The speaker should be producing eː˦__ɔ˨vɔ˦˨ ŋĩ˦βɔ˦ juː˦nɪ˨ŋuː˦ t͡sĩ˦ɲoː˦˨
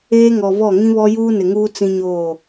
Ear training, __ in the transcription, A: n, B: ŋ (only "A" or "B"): B